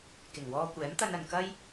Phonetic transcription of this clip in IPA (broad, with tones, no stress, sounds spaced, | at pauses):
k ɪ˨˩ ŋ w ɔː˧ kʷ ɛː˨˥ m t̪ ɐ˧ n ɐ˨ n k ɐ˥ j